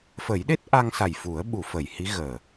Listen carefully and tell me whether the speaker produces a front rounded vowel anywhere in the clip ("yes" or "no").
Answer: no